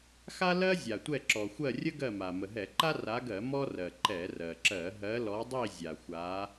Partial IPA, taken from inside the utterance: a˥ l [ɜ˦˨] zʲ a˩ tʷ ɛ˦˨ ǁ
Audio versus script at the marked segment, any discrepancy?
yes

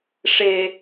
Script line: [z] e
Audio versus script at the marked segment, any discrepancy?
yes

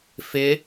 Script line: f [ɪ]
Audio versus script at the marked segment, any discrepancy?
no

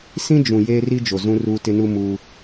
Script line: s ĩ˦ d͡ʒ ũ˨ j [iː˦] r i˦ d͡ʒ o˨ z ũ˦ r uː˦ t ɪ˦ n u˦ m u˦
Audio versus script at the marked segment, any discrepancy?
yes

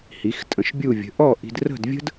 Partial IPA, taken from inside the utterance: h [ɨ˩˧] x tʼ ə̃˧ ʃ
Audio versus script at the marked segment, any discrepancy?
yes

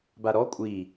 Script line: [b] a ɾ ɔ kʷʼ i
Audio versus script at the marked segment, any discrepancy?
no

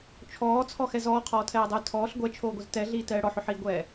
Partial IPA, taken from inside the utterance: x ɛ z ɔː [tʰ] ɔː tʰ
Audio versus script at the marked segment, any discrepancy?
yes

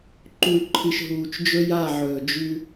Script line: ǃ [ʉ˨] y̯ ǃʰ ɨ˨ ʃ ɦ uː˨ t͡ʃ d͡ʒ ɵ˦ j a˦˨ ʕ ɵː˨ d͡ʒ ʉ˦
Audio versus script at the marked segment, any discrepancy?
yes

